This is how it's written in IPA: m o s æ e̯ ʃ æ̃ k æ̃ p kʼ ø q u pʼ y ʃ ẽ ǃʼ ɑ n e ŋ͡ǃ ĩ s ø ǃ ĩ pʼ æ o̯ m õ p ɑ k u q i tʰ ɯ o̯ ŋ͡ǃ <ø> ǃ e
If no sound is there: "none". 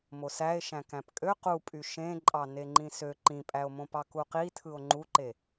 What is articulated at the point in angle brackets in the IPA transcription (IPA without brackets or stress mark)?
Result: u